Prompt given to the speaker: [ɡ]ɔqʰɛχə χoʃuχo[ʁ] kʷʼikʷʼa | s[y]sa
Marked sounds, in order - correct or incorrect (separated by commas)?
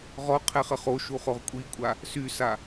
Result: incorrect, correct, correct